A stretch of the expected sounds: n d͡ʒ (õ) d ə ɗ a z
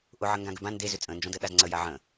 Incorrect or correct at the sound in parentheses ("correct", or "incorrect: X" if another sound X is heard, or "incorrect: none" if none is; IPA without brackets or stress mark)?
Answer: correct